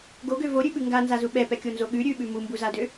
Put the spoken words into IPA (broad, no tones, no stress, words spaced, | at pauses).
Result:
ɡoɡø voɾʲʉɓʉ ŋɡanzazu ɓɛpɛkʲonzo ɠʉ ɾʲʉɓʉ mumbuzadø